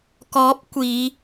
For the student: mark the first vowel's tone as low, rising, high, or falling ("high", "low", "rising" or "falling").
rising